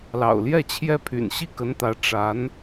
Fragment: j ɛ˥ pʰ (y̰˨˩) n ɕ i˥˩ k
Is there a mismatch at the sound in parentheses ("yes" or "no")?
no